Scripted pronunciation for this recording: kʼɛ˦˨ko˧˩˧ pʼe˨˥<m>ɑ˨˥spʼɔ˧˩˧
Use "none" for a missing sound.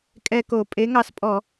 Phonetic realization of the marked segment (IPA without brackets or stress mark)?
ŋ